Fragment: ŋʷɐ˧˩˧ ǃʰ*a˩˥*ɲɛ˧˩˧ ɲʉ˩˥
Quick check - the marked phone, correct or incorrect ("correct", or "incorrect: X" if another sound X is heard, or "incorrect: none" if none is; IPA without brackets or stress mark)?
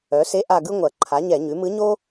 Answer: correct